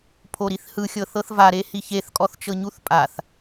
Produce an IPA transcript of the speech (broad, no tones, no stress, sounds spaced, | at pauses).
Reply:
pʰ o ɾ i θ h ɯ xʲ ɤ θ ɤ θ v a ɾ e h i ç e θ kʼ ɔ θ t͡ʃ ɤ ɲ u θ pʼ a θ